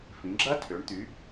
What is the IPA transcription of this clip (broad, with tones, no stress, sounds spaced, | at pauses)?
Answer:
f ĩ˩˧ ɡ͡ǁ ɐ˦˥ tʰ ø˩˧ ɳ t̪ y˩˧